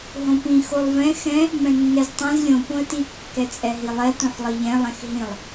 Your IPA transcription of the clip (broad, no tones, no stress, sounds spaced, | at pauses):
ɦ õ p ĩ x o lˠ v ɛ̃ x ɛ̃ | m ɛ̃ nː ɛ z tˤ ɛ̃ z lʲ õ p õ ə̯ t i kː ɛ t͡sʼ ɛ ɦ i lˠ ɛ t õ ħ lˠ i ʎ ɛ̃ lˠ ɛ̃ x ɦ ĩ lˠ